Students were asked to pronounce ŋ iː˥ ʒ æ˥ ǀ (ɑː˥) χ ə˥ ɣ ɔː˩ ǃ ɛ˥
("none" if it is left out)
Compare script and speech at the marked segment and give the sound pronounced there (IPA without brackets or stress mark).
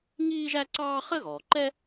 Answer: ɑː˥